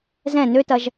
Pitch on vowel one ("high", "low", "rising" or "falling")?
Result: falling